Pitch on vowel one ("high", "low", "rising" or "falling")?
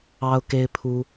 high